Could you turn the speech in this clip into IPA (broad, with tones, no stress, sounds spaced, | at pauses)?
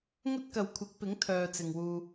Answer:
ŋ ɵ˥ t̚ k ɐ˨ w kʷʰ ɪ˨˥ k̚ p ɪ˨˥ ŋ t̪ʰ œː˧ t͡s ɪ˨ ŋ w uː˧